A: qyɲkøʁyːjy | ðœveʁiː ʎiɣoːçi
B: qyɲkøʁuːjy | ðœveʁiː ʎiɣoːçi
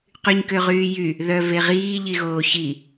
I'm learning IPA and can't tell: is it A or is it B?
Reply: A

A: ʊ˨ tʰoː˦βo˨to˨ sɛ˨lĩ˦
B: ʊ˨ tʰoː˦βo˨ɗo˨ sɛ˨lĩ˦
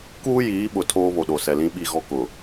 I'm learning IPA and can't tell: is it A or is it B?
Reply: B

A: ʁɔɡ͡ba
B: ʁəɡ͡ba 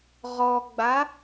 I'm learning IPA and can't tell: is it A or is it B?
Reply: A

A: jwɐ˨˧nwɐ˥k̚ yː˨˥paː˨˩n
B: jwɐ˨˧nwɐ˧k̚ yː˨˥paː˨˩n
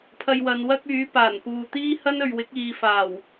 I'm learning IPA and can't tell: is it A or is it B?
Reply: A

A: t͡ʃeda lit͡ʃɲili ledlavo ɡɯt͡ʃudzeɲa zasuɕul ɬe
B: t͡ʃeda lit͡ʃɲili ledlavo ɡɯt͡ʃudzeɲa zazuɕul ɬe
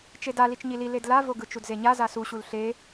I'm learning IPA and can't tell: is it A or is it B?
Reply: A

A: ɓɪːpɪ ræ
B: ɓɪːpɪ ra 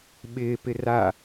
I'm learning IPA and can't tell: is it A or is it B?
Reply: B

